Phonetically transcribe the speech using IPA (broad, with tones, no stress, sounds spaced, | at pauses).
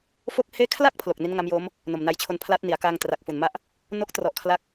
f o˥˩ k̚ h eː˥˩ kʰ l a˥˩ k̚ pʰ l o˨˩ k̚ n i˦˥ n ŋ a˦˥ m j o˦˥ m | n o˨˩ m n a˧ j t͡ɕʰ o˧ n pʰ l aː˦˥ t̚ n i˩˦ a̯ k aː˧ ŋ t r a˨˩ k̚ f u˨˩ n m a˦˥ ʔ | n o˦˥ k̚ t r ɔ˨˩ ʔ kʰ l a˥˩ k̚